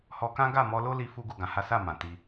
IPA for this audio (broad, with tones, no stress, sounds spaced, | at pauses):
h ɔ˧ k ã˦ ɡ a˦˨ m ɔ˧ l o˦ l i˧ f u˦ ɡ u˦˨ ɡ ã˧ h a˦ s a˦˨ m ã˨ t i˧